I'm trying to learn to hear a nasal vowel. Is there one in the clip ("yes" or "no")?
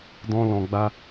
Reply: yes